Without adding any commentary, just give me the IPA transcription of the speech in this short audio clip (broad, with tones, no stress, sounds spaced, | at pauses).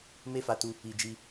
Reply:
m e˦ f a˧ t u˧ | i˧ d͡ʒ i˧